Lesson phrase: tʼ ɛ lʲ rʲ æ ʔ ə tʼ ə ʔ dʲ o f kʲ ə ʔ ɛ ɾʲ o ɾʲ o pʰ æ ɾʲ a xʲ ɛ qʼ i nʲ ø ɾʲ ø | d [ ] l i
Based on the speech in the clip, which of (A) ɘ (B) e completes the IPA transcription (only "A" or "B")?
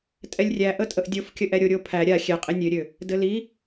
A